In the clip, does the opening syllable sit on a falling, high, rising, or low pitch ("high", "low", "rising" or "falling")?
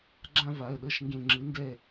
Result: falling